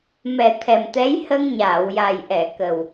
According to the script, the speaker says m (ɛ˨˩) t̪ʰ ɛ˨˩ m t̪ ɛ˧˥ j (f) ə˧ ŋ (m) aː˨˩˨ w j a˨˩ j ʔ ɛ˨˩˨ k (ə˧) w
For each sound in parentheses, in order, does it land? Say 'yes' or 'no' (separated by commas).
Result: yes, no, no, no